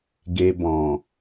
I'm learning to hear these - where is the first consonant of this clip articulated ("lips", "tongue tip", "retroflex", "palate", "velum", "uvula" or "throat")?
velum